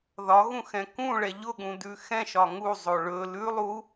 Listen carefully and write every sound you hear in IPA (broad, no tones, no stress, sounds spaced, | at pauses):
ð ɒ ɣ ũ x ɛ̃ k ũ ɭ ɛ ʎ ʊ ɠ ũ d ʉ x ɛ̃ ʃ ɒ ŋ u zˤ o ɭ ɵ l ʉ lˠ u